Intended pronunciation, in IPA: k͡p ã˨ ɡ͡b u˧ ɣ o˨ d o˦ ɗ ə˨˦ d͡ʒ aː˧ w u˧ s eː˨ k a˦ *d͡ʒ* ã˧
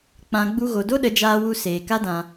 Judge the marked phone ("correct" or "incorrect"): incorrect